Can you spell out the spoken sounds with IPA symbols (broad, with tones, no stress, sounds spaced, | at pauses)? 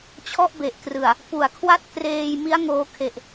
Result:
t͡ɕʰ ɔ˥˩ ʔ b e˨˩ ʔ k r ɯ˨˩ a̯ | p u˨˩ a̯ kʰ w a˥˩ t̚ k r eː˧ j m i˦˥ a̯ ŋ oː˧ kʰ e˨˩ ʔ